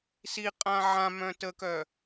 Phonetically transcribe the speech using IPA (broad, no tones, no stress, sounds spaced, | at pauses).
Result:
s i qʼ ã ʕ ã m œ̃ t ə k œ